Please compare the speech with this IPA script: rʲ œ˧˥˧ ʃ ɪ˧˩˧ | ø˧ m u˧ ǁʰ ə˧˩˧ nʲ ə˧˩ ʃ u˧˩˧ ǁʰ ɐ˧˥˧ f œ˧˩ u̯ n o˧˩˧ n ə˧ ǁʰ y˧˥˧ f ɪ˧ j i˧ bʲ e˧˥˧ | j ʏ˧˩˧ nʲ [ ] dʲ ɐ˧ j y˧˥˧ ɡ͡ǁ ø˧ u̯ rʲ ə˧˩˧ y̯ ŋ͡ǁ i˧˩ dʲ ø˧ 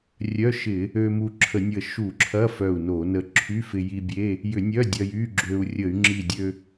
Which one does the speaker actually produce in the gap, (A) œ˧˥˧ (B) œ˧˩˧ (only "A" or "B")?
A